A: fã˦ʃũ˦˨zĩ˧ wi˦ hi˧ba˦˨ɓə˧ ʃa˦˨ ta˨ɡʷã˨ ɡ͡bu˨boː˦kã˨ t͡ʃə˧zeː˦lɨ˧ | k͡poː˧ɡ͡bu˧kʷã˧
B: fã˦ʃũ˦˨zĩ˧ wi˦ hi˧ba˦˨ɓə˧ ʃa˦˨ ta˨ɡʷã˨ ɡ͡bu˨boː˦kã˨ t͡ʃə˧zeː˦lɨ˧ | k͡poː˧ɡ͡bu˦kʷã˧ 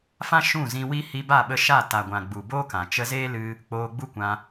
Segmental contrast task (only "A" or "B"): B